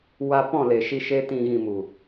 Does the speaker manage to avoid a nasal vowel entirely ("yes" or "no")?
no